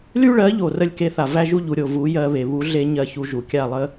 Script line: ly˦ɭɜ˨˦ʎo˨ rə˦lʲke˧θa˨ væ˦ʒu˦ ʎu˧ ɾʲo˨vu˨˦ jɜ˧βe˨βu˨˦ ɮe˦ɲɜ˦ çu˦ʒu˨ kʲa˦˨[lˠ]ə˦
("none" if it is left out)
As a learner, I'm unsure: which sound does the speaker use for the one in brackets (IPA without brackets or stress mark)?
lˠ